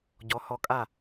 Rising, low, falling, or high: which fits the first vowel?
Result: rising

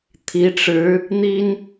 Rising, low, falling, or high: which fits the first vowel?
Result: rising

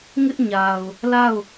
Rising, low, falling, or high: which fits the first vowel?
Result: high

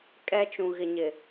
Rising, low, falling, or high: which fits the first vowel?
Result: high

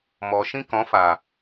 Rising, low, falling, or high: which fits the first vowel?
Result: low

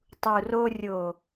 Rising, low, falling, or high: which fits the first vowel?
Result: low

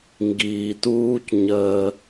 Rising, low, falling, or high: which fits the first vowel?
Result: low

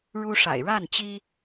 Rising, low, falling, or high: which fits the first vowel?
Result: high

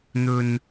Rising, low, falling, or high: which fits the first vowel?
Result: low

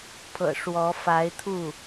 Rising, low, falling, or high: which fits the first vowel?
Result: low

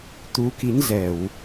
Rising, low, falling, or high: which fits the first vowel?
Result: rising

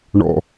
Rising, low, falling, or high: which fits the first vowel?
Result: low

